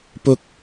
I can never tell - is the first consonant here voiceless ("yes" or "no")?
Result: yes